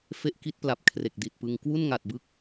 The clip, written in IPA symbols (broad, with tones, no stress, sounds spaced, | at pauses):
f e˦˥ ʔ k i˦˥ t̚ p l a˨˩ p̚ kʰ r e˨˩ k̚ d i˨˩ t̚ p ɯ˧ ŋ k w u˥˩ n ŋ a˨˩ t̚ b ɯ˦˥ k̚